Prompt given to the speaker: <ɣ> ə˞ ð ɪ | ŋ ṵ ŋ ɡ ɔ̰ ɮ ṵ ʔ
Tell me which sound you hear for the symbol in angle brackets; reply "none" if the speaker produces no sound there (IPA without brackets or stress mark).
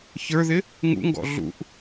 ç